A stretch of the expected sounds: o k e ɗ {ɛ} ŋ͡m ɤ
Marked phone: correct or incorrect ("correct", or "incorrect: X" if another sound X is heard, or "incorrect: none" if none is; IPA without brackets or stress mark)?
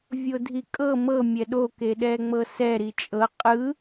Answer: correct